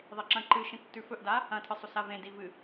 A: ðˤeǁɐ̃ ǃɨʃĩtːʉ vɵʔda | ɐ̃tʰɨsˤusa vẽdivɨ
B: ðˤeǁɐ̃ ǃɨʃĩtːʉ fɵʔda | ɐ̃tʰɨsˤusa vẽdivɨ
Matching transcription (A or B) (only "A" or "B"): B